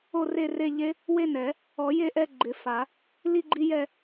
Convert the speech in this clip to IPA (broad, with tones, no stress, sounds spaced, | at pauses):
o˥˧ r e˥˧ r e˥˧ ʎ e˦˥ | w e˥˧ n ɛ˨˩˦ | ɔ˨˩˦ j e˥˧ ʔ ɛ˥˧ ɡ͡ǃ ɪ˨˩˦ f a˨˩˦ | l i˥˧ ɡ͡ǃ i˦˥ j ɛ˥˧